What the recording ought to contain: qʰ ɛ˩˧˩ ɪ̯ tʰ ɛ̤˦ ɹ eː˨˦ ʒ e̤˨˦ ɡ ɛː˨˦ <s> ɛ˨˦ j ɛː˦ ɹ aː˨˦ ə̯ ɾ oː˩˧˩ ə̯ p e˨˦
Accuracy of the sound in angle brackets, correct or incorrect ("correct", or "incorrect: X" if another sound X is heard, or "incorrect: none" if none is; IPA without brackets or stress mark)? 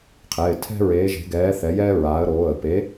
incorrect: θ